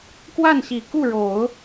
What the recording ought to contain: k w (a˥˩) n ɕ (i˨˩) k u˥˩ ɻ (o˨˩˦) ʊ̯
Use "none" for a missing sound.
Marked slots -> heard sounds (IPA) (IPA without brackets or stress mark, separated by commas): a˥˩, i˨˩, o˨˩˦